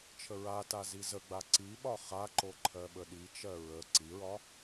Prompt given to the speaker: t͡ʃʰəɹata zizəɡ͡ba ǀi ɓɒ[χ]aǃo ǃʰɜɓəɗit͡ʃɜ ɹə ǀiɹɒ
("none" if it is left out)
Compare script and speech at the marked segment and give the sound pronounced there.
χ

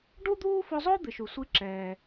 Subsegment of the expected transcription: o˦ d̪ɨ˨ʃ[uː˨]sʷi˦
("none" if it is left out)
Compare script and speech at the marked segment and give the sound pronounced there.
u˨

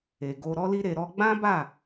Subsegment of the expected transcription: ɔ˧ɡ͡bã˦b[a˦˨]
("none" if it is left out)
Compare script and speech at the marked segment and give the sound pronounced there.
a˦˨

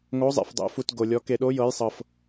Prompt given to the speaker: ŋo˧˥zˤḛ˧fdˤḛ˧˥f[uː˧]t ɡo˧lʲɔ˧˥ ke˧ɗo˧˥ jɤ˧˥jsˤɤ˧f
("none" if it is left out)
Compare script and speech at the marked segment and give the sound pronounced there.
u˧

